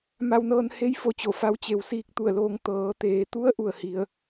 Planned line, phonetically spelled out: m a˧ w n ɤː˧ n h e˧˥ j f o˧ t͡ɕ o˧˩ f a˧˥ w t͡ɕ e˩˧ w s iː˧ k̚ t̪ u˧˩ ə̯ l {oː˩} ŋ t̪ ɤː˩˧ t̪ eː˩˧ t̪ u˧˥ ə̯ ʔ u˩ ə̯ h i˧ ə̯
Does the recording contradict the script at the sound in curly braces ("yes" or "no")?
yes